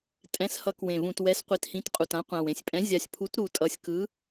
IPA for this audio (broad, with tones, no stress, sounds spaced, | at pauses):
tʼ ɛ̃˩˥ s h ʌ˩˥ k w ẽ˨˩ v ũ˨˩ t w ɛ˩˥ s qʷ i˩˥ t h ĩ˩˥ t qʼ u˨˩ t ã˩˥ qʷ ã˨˩ w ẽ˨˩ sʲ pʼ ɛ̃˩˥ zʲ a˨˩ sʲ pʰ u˩˥ t ɾ u˨˩ tʼ ʌ˨˩ sʲ k ɯ˩˥